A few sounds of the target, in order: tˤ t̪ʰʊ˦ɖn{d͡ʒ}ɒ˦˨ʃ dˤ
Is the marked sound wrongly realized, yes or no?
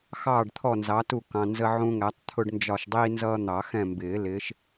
no